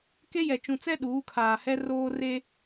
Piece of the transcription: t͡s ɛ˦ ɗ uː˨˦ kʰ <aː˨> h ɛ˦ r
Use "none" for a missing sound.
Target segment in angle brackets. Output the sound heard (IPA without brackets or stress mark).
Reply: aː˨